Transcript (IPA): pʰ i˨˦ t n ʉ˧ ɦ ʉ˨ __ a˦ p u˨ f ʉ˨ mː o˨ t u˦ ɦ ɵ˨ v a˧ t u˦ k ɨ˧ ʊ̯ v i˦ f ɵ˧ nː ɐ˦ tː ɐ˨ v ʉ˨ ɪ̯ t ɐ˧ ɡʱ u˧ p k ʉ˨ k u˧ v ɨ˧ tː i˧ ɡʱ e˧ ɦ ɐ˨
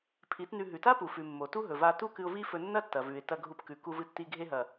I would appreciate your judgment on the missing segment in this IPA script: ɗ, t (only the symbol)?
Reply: t